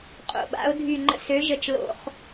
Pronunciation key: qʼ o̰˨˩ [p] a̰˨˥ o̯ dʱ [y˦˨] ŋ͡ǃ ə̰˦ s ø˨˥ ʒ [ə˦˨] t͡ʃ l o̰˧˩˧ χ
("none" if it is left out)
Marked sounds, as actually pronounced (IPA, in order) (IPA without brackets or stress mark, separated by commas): ɓ, y˦˨, ə˦˨